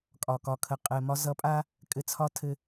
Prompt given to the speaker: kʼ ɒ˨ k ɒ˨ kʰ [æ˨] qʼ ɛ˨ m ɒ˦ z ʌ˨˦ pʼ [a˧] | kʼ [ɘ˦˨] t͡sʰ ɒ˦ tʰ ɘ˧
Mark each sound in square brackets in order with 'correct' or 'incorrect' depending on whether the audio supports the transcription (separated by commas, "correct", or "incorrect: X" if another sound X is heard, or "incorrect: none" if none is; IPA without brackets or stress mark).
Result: incorrect: ə˨, correct, incorrect: ɘ˧